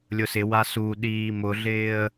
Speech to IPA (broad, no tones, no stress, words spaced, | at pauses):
lʲʊsɪ wasuɗiː mʊɮɪːə̯